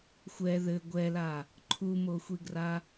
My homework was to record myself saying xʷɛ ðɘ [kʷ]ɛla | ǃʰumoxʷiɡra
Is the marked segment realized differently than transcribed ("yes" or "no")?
yes